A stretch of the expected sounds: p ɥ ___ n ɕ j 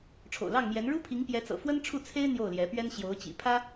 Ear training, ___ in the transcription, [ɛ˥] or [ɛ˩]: ɛ˥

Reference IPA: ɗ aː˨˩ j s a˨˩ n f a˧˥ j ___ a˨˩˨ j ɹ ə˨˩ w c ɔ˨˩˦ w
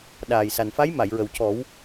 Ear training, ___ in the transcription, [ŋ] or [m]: m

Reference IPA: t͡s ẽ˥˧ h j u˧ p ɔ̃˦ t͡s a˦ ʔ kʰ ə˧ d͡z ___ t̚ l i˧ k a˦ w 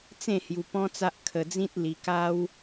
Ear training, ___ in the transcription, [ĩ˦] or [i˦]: ĩ˦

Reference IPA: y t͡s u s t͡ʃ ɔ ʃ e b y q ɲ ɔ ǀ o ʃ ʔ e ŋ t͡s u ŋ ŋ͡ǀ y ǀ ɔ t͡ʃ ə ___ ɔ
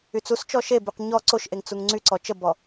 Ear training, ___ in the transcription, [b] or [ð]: b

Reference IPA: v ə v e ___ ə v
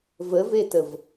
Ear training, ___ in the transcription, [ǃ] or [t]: t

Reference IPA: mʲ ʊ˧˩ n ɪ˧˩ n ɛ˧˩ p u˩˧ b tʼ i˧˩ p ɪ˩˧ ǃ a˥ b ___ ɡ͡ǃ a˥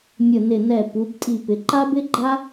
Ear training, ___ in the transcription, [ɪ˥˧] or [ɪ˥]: ɪ˥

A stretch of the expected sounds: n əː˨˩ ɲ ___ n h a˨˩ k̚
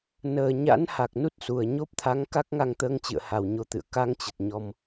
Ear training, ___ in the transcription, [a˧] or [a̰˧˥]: a̰˧˥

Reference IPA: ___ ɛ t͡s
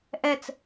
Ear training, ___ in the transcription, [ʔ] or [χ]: ʔ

